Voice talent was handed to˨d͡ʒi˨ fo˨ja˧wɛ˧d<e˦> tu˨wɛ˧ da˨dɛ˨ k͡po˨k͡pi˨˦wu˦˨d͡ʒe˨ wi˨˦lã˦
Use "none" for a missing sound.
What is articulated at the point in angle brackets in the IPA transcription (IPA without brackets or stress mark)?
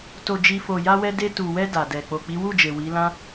e˧